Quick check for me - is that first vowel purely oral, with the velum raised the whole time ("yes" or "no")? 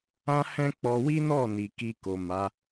no